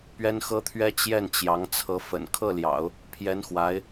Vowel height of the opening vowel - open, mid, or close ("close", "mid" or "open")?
mid